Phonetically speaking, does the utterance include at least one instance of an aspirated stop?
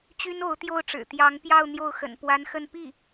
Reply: no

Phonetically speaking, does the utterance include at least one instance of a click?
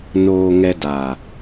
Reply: no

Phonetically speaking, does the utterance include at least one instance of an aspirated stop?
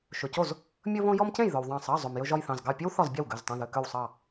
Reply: no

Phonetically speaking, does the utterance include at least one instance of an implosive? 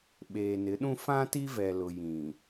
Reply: yes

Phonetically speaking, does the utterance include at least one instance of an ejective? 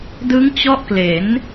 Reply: no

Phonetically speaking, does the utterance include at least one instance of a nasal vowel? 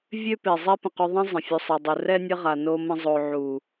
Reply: yes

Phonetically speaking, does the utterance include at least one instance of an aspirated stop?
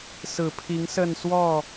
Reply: yes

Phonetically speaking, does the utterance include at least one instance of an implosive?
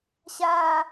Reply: no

